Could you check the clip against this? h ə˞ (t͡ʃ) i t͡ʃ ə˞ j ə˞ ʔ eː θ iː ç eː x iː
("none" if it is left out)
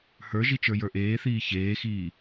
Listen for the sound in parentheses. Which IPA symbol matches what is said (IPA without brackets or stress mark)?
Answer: ʒ